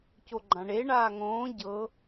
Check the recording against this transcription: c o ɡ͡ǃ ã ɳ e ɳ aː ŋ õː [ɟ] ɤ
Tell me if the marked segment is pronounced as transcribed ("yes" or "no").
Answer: yes